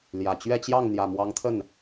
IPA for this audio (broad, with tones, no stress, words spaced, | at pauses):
ljä˨˩ t͡ɕɥɛ˥˧t͡ɕjɑ˥˩ŋn̪jä˨˩ mwɑ˧˥ŋt̪ʰə˥˩n